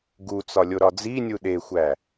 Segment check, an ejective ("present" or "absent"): absent